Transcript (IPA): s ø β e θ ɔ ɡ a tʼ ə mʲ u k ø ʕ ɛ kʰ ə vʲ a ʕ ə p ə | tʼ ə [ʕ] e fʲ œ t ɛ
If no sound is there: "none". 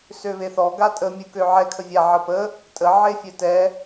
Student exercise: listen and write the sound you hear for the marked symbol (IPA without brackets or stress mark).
ʕ